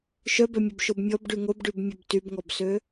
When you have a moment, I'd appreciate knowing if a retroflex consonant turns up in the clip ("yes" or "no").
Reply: yes